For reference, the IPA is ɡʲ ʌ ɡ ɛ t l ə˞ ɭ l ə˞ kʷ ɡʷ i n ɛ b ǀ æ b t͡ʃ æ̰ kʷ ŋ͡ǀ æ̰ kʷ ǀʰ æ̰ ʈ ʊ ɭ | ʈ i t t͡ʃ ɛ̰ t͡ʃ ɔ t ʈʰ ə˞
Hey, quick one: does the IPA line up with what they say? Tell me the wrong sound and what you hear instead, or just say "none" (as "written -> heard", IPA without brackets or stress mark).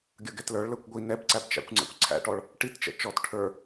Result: ʊ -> ɔ